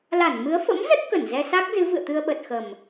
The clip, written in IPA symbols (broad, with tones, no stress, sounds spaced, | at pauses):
l a˧˩ n m ɨ˨˦ ə̯ f ə̰˧˥ m z ə˦˥ t̚ k ə˧˩ n z ɛ˧ s a˦˥ k̚ z ɨ˨˦ v ɨ̰˧˨ ə̯ t̪ ɨ˧ ə̯ ɓ ə˨˩ t̚ x ə˨˩ m